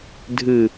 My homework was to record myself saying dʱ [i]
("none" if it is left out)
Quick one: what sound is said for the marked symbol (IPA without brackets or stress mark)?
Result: ɨ